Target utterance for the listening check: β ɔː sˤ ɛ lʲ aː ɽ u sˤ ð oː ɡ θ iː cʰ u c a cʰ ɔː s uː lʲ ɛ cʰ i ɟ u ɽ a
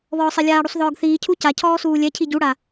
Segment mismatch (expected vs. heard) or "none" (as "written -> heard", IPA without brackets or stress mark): oː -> ɔː